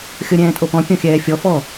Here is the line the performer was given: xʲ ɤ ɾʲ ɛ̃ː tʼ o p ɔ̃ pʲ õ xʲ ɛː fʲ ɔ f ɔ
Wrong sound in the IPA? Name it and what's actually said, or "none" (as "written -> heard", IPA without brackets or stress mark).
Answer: none